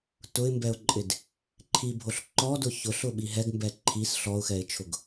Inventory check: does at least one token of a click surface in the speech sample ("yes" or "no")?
yes